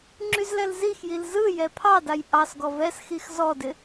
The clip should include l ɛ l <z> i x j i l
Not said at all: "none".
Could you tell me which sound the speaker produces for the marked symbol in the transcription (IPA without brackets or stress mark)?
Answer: z